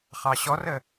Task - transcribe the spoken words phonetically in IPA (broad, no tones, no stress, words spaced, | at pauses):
χɑɕɔrə